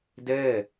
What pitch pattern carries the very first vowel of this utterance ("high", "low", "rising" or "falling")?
falling